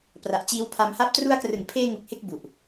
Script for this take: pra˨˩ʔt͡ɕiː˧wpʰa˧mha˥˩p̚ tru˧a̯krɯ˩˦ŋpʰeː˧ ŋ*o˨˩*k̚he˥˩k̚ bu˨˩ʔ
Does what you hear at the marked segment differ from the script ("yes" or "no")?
yes